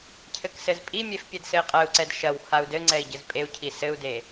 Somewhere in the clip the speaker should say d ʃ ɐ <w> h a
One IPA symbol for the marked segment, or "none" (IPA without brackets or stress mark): w